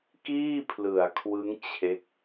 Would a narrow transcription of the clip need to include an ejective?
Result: no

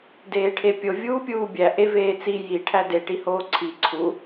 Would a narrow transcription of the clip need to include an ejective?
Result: no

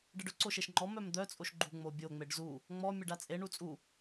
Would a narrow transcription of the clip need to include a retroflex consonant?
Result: yes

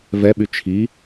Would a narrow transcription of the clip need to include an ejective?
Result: no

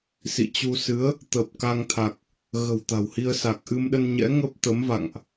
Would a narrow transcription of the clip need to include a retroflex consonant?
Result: no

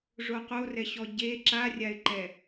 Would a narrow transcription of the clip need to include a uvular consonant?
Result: yes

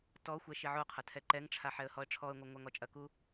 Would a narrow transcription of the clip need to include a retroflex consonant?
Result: yes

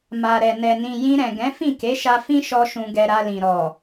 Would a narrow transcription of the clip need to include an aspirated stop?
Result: no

